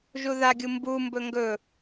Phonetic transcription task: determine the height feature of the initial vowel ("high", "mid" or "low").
high